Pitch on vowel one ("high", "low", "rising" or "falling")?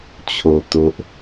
low